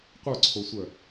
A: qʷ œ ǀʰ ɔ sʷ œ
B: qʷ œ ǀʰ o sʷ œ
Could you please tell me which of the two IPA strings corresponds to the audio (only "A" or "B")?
B